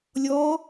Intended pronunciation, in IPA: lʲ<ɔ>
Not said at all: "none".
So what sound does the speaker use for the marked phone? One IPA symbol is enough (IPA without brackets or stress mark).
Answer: ɔ